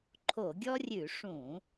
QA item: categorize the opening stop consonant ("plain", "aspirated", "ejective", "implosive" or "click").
click